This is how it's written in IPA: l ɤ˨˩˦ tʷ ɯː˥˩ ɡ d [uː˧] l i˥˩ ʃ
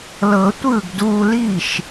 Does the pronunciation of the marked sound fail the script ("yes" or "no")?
no